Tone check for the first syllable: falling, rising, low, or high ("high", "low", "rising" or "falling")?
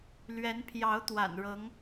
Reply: rising